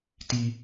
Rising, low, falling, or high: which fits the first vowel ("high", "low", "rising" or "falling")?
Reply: high